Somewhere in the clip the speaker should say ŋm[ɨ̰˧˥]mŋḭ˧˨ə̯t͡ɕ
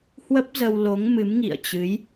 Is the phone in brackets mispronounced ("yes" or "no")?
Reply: yes